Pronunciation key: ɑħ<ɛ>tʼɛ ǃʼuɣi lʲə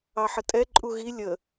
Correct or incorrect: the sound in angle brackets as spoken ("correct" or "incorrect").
incorrect